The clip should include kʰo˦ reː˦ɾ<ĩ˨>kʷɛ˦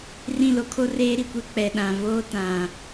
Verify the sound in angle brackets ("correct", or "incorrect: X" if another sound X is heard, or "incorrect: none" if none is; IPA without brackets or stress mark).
incorrect: i˨